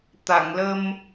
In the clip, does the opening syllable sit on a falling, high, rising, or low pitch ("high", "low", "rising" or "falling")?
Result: low